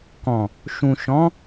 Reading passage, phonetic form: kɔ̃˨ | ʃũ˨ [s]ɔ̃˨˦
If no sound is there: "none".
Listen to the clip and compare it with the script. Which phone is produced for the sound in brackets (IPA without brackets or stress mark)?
ʃ